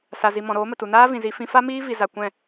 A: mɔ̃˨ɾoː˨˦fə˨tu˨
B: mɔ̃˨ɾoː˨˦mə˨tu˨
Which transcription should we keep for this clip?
B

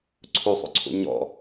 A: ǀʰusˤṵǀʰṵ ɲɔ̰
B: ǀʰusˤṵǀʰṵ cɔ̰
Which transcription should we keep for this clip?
A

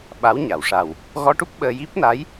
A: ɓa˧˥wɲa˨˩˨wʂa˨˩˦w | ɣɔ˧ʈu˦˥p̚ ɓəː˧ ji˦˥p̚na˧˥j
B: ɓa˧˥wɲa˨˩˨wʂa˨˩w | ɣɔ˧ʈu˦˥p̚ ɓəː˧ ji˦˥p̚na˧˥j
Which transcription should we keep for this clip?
B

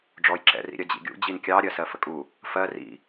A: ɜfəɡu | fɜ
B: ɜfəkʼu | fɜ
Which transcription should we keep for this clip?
B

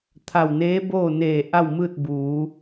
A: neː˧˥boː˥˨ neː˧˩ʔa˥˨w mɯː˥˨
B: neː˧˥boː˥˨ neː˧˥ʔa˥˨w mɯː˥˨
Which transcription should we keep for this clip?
A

